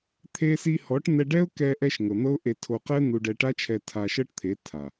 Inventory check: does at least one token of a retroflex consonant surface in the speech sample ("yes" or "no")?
yes